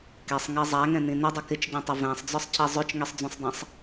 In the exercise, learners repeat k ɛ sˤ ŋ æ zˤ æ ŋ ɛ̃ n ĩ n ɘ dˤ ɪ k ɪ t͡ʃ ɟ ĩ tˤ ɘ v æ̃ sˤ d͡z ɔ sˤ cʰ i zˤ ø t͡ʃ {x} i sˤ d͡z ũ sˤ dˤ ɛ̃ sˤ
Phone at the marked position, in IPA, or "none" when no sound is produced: ŋ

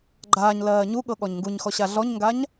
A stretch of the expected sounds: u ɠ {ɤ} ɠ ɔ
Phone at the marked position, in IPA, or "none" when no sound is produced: ɤ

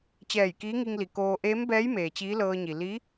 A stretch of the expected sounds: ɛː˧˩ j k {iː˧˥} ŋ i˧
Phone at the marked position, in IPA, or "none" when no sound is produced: iː˧˥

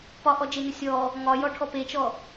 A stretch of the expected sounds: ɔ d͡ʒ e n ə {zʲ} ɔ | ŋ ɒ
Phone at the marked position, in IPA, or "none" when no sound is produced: sʲ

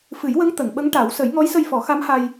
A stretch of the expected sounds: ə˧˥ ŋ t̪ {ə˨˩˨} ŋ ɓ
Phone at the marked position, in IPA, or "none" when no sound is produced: ə˨˩˨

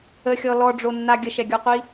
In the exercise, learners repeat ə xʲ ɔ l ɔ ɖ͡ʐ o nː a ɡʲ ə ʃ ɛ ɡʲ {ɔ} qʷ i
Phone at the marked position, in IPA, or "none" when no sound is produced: ɔ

